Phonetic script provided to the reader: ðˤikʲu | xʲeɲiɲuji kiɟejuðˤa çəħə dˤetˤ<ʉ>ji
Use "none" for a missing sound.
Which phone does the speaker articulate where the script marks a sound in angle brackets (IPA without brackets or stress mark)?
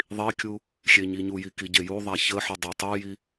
u